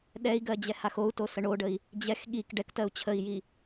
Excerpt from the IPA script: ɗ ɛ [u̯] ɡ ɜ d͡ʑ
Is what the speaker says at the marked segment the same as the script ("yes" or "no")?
no